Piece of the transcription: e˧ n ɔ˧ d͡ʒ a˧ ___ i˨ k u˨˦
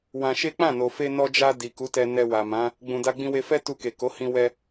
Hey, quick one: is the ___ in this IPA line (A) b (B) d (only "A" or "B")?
B